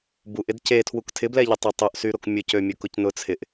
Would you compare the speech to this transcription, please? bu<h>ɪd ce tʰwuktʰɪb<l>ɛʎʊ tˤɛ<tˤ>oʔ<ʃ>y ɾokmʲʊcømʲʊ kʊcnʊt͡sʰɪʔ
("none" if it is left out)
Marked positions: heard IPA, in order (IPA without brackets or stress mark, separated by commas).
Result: ʔ, l, tˤ, s